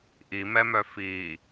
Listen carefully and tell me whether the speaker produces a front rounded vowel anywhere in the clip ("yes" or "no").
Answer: yes